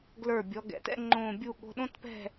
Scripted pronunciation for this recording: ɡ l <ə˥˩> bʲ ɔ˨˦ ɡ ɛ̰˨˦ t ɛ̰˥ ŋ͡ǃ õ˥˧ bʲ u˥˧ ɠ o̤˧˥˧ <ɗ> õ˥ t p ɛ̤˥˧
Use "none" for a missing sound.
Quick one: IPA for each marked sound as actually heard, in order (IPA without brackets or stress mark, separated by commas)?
ə˞˥˩, ɗ